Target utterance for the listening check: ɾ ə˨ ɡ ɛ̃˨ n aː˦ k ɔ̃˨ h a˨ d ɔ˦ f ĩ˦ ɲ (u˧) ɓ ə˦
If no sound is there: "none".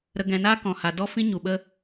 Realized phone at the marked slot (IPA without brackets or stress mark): u˨